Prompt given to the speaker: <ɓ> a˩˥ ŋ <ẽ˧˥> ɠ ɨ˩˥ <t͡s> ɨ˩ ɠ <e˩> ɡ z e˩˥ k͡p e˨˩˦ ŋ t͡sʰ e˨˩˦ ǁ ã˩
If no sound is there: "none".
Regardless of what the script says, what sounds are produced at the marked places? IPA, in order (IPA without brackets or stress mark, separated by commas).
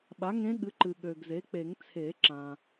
ɓ, ẽ˧˥, ǃ, ø˩